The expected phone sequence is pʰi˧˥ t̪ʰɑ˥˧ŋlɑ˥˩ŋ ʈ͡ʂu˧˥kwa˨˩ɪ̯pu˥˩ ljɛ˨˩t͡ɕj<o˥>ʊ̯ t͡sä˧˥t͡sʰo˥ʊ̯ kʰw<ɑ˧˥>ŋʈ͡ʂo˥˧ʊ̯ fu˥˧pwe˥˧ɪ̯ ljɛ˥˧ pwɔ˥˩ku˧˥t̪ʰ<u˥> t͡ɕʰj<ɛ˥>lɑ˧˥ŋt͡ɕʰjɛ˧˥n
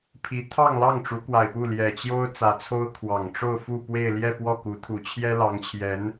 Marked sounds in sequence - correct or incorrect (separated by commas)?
correct, incorrect, incorrect, correct